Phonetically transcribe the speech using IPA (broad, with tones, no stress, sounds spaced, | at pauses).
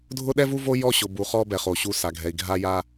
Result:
dʱ ʊ˦ ɗ ɛ˦ v u˦ v o˦ j ɔ˦˨ ɕ ʊ˨ b u˨ χ ɔ˦ b ɛ˨ χ o˨ ɕ u˦˨ s a˨ ɡʱ ɛ˨ i̯ ɡʱ a˦ j a˦